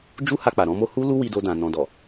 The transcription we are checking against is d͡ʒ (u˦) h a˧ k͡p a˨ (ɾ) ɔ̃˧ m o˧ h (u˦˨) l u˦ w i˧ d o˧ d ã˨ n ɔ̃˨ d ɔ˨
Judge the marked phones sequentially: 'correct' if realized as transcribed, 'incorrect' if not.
correct, correct, incorrect: u˦

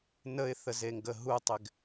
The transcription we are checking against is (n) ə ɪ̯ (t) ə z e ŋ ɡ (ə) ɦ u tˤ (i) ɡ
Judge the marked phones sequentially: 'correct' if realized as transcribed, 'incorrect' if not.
correct, incorrect: θ, correct, incorrect: ɪ

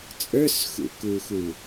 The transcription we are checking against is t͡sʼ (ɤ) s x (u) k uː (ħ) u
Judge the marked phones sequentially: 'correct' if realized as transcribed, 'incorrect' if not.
incorrect: ə˞, incorrect: ṵ, incorrect: x

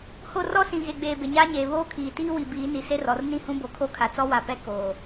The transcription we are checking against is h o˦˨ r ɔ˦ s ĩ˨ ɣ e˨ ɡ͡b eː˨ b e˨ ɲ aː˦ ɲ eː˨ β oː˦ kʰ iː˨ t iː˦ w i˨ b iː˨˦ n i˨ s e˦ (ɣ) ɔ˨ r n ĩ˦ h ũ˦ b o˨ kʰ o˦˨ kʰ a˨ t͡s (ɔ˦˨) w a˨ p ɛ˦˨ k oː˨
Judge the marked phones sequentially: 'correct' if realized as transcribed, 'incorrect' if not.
incorrect: r, incorrect: ɔ˦

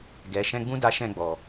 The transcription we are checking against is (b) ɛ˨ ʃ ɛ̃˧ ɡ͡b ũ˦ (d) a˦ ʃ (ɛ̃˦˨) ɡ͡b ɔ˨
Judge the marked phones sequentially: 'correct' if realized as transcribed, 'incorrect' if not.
incorrect: ɡ, correct, correct

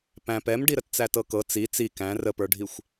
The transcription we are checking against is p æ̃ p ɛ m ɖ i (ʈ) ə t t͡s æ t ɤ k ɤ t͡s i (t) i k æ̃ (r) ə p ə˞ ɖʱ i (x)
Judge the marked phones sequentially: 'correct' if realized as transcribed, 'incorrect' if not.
incorrect: ɾ, incorrect: t͡s, correct, incorrect: xʷ

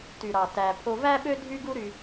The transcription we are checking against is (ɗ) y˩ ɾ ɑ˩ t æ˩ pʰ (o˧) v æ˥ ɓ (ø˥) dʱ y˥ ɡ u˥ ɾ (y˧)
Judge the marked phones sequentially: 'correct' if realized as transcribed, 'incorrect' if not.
incorrect: t, correct, correct, correct

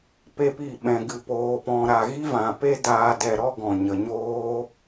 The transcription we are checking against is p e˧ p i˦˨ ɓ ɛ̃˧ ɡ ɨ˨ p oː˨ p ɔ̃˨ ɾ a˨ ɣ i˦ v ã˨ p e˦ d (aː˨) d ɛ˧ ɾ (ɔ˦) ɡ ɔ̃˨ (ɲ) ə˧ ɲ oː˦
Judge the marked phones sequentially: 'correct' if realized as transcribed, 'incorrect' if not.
incorrect: aː˧, correct, correct

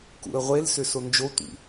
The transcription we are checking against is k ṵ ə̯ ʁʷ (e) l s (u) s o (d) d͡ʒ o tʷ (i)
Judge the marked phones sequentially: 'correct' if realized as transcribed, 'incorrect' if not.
correct, incorrect: ʏ, incorrect: n, incorrect: ḭ

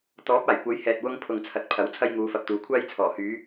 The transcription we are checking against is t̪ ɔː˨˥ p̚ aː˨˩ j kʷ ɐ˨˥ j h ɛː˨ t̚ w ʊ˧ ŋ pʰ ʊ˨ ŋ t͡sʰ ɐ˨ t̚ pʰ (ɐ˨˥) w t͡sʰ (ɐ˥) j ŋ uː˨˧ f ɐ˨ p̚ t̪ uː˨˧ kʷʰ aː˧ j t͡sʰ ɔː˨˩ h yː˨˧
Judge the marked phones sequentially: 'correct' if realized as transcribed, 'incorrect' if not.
correct, incorrect: ɐ˧

